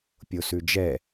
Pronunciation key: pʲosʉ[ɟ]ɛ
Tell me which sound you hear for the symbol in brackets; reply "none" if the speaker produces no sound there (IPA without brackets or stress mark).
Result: d͡ʒ